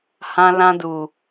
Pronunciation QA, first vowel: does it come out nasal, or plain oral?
nasal